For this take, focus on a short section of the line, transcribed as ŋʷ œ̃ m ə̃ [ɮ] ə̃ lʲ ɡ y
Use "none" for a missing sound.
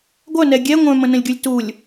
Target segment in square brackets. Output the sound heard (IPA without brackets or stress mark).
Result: n